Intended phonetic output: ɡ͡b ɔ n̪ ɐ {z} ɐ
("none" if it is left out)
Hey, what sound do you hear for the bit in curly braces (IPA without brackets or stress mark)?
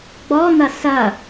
s